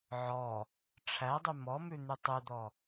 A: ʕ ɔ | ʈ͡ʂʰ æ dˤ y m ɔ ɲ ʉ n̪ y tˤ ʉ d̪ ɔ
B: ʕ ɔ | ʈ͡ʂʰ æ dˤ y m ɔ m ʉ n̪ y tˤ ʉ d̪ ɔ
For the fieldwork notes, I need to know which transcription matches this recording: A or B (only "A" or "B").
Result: B